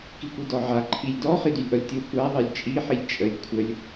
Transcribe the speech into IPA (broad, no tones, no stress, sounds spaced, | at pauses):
k i kʷ i d ɔ ʕ a ǃʰ i lʲ d ɔ χ i d y lʲ ʔ ɔ lʲ tʲ o kʷ a ðˤ i lʲ t͡ʃʼ i ħ i lʲ t͡ʃʼ ə lʲ kʷʰ ə lʲ